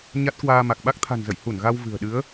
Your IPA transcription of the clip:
ɲ a˦˥ t̚ k w aː˧ m a˨˩ k̚ ɓ a˦˥ k̚ t̪ʰ a̤˨˩ n z ə̰˧˨ j h u˧˩ n ɣ a˧ w v ɨ̤˨˩ ə̯ ɗ ɨ˨˦ ə̯

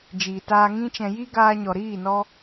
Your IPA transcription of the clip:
d͡ʒ iː˨ t aː˧ ŋ ĩ˦ t͡ʃ ɛ̃˧ j i˦ ɡ aː˧ ɲ ɔ˨ ɾ iː˦˨ n ɔ˧

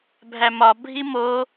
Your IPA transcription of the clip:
bʱ æ m ɒ bʱ i m o

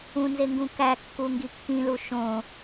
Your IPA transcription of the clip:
ũ n z e ŋ ɡ ũ k æ kː u ŋ ɡ i kː ĩ l u ʃ õ

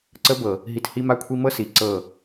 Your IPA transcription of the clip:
ǀ ə˧ b ɤ˨ | ɦ i˧ t h i˦ m a˦ kʷʰ i˦ m ɤ˦ s i˨ ǀ ɤ˦˨

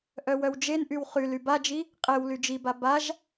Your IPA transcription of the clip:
ʔ œ w œ w d͡ʒ e n ʔ y w χ y l y b a d͡ʒ i | qʼ e w l y d͡ʒ i b a b a ʒ

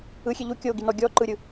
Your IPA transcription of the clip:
ɯ xʲ e ʎ u kʲ o ɡ i n ɔ ɡʲ ɔ ǃ ɯ ɾʲ ɯ

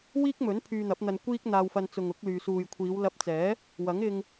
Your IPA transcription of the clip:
w iː˥ k̚ m ɵ˨˥ n pʰ yː˧ n̪ ɐ˨˥ p̚ n̪ ɐ˧ n kʷ iː˥ k̚ n̪ aː˧ w f ɐ˧ n t͡s ʊ˨ ŋ ʊ˨˥ k̚ l yː˨ s uː˨ j kʷʰ iː˨˧ w l ɐ˧ p̚ t͡s ɛː˨˥ | w ɐ˨˥ ŋ ɪ˧ ŋ

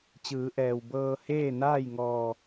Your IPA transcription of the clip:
t͡ɕ ɯː˩˧ ʔ ɛː˩ w b ɤː˧ h eː˥˨ n aː˥˨ j ŋ ɔː˧˩

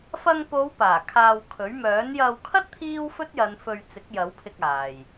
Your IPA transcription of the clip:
f ɐ˧ ŋ p o˨˧ w p aː˨˩ kʰ aː˧ w kʰ ɵ˨˥ ɥ m œː˨˥ n j ɐ˧ w kʰ ɐ˥ t̚ t̪ʰ iː˥ w f ɵ˥ t̚ j ɐ˨˧ n f ɵ˧ ɥ t͡s ɪ˨˥ k̚ j ɐ˨˥ w pʰ ɪ˧ k̚ aː˨ j

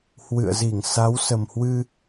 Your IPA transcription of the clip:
h w ɨ̰˧˨ ə̯ z i˧˩ ŋ s a˨˦ w s ə˨˩ m h w ɨ˧

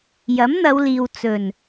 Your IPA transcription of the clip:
j ɐ˨˥ m n̪ ɐ˨˧ w l iː˨ w t͡s ɵ˨˩ n

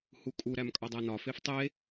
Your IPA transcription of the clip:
h u kʼ u ɾ æ m kʼ ɒ dˤ æ n ɒ f e f tˤ e

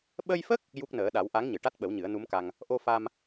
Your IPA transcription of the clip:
ɓ ə˧ j f ə˦˥ k̚ | j u˦˥ k̚ n əː˨˩˦ ɗ a˨˩˦ w ʔ a˧˥ ŋ ɲ ɨ˨˩˨ ʈ a˦˥ t̚ ɓ ə˨˩˦ w ɲ ɨ˨˩˦ ə̯ n u˧˥ m k a˧ ŋ | ʔ o˧ f a˧ m

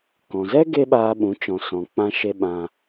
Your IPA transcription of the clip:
k ɔ̃˨ z ɛ˦ ɡ e˦ ɓ aː˧ ɓ ũ˨˦ t͡ʃ ɔ̃˨ s ɔ̃˨ k͡p ã˧ ʃ e˧ ɓ ã˧

